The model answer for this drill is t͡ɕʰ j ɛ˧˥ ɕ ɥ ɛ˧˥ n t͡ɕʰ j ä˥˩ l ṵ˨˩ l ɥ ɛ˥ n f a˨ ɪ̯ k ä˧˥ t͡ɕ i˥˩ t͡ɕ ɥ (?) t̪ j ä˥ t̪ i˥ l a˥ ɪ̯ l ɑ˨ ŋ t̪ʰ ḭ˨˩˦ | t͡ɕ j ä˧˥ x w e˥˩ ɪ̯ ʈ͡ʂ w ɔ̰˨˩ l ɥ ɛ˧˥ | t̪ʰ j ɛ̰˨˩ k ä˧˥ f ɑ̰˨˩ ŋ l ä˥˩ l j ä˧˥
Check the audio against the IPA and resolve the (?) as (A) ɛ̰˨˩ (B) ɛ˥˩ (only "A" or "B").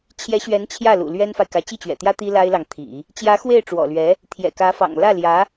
A